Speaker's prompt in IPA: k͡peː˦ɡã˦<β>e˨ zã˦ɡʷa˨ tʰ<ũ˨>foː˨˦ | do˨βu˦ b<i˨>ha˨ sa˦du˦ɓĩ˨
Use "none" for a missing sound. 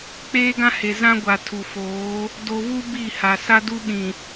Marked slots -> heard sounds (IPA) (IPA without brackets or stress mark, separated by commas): h, u˨, i˦˨